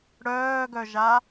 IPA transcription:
ɽ œː ɡ œ ʒ a

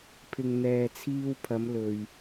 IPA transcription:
pʰ ɪ˧ ŋ n̪ ɛː˨ t͡sʰ iː˧ w pʰ ɐ˨˧ m l ɵ˧ ɥ

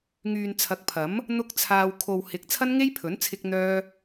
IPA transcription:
ŋ yː˨ n t͡sʰ ɐ˨˥ k̚ pʰ ɐ˨˥ m | n̪ ʊ˥ k̚ t͡sʰ aː˧ w kʰ o˨ w h ɪ˨ k̚ t͡sʰ ɐ˥ n ŋ e˥ j pʰ ɵ˨˥ n t͡sʰ ɪ˥ k̚ n̪ œː˥

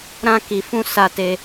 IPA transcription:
ɾ ã˧ k i˨ f ũ˧ s a˧ t e˧

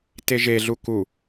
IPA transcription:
t e ʒ e ɮ u k u

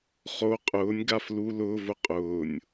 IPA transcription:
χ o qʼ ʊː nʲ ɡ a f l u l ʊː v ʊ qʼ ʊː nʲ

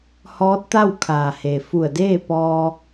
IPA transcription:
h ɔː˧˥ t̚ t̪ a˥˨ w kʰ aː˩ h e˩ f u˧˩ ə̯ d eː˥˨ p ɔː˧

